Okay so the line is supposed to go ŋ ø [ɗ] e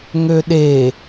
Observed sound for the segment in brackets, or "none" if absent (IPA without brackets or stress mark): ɗ